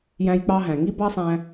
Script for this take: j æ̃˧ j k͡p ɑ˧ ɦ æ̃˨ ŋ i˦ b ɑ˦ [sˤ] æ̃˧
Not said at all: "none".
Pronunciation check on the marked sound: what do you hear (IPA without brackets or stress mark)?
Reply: sˤ